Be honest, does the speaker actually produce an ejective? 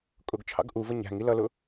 yes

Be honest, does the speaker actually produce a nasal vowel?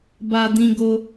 yes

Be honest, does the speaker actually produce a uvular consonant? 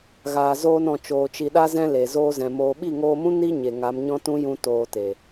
no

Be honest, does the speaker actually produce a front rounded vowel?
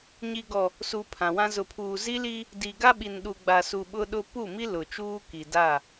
no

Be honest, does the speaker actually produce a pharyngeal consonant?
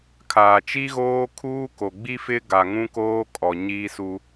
no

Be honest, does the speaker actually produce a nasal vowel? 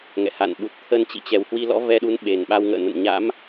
no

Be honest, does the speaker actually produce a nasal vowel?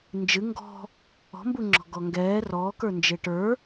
no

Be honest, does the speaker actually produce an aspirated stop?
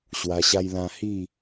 no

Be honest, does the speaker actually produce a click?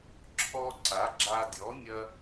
yes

